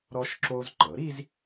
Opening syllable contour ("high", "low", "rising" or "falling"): high